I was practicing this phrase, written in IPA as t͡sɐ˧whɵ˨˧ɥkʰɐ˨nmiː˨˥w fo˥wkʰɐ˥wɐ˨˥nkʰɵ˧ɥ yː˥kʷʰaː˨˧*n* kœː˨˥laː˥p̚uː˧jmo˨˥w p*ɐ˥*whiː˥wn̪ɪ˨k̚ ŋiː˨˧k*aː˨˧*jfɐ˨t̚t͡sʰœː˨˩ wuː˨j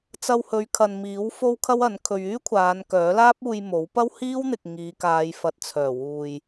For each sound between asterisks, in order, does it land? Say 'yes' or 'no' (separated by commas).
yes, yes, yes